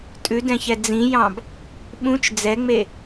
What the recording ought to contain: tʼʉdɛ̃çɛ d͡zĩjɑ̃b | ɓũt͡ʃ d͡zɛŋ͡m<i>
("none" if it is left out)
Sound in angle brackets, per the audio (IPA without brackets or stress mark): e